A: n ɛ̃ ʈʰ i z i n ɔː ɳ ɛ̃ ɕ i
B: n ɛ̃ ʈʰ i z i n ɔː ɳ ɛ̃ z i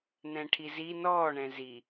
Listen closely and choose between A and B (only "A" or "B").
B